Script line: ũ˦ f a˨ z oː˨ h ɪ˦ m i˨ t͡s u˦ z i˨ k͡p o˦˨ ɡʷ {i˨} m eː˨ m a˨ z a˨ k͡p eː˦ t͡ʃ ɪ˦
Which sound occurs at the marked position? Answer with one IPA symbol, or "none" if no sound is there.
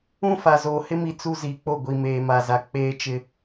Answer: i˨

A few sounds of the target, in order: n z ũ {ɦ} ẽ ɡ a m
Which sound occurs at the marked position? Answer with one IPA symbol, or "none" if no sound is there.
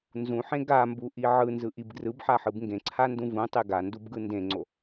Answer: ħ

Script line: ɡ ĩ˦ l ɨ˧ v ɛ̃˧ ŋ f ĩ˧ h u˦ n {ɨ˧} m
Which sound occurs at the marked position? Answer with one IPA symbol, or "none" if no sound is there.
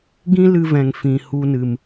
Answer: ɨ˧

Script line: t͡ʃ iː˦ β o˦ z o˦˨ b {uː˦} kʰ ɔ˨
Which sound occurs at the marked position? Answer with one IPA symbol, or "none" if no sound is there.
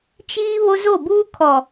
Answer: uː˦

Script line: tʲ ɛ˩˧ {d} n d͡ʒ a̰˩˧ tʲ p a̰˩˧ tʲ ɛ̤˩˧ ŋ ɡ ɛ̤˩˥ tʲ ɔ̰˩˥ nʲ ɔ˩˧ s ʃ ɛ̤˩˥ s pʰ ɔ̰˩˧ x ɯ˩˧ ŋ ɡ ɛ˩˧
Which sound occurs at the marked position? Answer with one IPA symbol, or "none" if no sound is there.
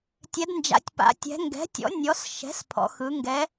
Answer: d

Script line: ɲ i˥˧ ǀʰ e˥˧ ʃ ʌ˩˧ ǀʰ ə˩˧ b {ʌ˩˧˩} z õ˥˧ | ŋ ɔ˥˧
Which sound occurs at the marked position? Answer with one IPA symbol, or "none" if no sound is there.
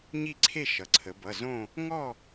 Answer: ʌ˩˧˩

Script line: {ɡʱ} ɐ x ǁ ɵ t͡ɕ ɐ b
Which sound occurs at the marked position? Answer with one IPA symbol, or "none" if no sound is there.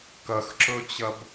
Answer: k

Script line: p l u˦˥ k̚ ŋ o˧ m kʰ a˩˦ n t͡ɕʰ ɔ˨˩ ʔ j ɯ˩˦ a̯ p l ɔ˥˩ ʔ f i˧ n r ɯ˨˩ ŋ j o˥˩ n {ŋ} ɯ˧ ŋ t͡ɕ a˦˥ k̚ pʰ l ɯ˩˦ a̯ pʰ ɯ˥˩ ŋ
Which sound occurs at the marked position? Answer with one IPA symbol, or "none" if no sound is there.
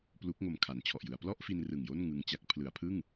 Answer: ŋ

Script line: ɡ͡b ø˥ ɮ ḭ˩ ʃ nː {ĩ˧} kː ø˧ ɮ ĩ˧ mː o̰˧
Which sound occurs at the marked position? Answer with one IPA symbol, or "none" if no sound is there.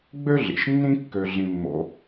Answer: ĩ˥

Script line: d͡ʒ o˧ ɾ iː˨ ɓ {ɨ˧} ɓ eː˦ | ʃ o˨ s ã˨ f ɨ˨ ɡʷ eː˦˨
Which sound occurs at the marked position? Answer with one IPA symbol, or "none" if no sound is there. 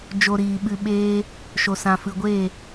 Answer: ɨ˧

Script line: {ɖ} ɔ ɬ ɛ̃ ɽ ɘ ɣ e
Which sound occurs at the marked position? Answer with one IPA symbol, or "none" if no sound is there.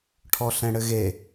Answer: ʈʰ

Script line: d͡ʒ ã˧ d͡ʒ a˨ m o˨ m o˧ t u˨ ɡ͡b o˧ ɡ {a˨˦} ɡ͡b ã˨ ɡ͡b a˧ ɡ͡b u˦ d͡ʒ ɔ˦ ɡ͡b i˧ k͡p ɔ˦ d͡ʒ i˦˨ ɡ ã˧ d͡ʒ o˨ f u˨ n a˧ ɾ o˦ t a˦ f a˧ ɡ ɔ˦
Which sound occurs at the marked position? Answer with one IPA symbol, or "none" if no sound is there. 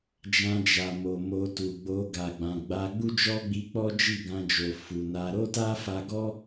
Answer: a˨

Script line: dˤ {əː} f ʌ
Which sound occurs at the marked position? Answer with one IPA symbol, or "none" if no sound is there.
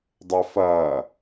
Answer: ə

